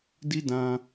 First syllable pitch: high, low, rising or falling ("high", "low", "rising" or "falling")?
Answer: high